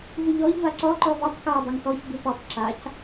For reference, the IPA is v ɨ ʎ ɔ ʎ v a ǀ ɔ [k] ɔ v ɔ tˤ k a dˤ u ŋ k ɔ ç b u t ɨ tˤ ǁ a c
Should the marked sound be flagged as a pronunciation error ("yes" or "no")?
yes